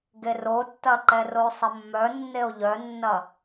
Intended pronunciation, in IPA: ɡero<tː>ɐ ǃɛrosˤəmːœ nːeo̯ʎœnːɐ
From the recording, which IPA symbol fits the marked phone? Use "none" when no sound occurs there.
tː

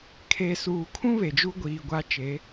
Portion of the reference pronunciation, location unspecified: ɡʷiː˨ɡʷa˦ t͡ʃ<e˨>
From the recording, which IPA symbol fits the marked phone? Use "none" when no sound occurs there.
e˨˦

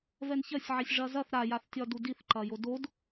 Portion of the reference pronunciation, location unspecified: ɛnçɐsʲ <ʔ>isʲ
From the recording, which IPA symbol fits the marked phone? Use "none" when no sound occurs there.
ʕ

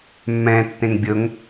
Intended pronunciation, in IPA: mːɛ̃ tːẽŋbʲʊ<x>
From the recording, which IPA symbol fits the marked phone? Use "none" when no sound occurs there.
ŋ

